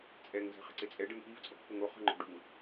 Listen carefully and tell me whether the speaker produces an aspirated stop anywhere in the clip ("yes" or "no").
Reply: no